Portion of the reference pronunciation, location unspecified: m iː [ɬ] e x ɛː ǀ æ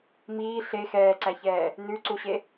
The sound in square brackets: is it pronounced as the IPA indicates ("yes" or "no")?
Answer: yes